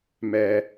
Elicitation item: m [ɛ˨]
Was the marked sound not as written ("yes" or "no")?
yes